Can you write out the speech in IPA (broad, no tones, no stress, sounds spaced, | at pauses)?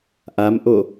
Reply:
ʔ a m ʔ o